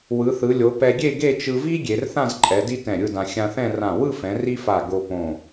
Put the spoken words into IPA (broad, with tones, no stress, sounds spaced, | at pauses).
w ɯ˩˧ θ ɯ˩˧ lʲ o˩˧ p ɛ˧ ɡʲ e˥˧ ɡ e˥˧ t͡ʃ ɯ˧ v i˥ ɡʲ e˩˧ r θ ã˥˧ z ǃʼ ɛ˩˧ d i˥ t ɛ̃˧˩ ɾʲ ɯ˥˧ d ã˧ xʲ ã˧ θ ɛ̃˥˧ r ã˧˩ w ɯ˥˧ f ɛ̃˩˧ r i˥ f a˧˩ ɡ o˧ p õ˧˩